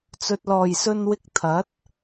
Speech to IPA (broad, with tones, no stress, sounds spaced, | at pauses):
t͡s ɵ˨ t̚ l ɔː˨˩ j s ɵ˧ n w ɪ˧ k̚ t̪ʰ ɐ˨˥ t̚